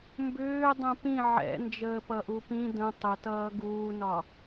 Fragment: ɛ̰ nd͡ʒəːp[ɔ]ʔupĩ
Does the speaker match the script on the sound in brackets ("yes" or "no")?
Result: no